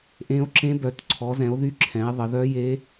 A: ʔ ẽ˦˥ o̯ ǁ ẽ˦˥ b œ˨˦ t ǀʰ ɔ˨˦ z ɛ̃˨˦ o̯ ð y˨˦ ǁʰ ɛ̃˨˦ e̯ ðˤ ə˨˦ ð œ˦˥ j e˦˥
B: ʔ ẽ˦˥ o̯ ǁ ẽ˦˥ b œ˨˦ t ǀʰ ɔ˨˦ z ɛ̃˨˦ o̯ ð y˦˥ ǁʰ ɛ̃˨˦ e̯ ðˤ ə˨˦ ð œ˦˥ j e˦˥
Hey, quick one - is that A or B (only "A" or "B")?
B